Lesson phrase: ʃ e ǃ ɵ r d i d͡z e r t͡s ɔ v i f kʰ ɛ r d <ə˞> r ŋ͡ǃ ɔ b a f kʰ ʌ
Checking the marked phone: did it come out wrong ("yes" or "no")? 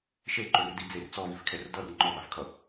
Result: yes